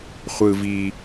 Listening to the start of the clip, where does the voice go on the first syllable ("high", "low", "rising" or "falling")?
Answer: low